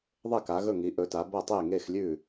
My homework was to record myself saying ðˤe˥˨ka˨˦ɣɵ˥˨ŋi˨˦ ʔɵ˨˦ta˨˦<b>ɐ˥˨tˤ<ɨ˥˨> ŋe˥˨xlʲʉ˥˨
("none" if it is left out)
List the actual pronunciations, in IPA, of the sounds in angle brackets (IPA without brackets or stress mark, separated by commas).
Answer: b, e˥˨